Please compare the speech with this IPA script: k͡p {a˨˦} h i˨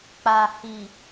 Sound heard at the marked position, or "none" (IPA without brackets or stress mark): a˨